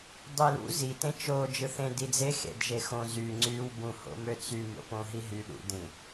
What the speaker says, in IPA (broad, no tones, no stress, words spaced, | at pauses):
dˤilṵ zitẽ t͡ʃo d͡ʒɯθẽ did͡ze xḛdʒexõ zy ŋ͡ǀyw bũho̰møt͡sy mo̰põɦiɦy ɗṵdĩ